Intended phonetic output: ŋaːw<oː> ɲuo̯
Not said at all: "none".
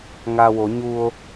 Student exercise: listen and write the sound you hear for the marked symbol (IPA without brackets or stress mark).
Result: o